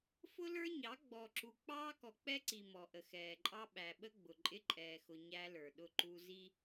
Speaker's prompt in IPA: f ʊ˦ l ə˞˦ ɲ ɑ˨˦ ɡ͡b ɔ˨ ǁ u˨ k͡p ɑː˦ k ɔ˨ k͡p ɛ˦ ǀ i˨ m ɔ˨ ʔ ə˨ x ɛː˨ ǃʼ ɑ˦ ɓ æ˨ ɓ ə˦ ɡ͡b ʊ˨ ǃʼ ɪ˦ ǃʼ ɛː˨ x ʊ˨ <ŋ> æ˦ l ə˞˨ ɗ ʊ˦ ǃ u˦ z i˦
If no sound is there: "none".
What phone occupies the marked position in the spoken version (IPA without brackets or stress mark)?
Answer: ɲ